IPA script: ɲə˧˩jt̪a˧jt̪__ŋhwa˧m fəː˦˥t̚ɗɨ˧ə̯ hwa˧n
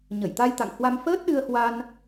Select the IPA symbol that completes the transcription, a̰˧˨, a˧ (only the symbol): a̰˧˨